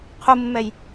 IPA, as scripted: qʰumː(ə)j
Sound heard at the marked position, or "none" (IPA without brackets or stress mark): ɛ